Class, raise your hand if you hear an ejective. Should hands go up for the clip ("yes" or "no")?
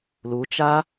no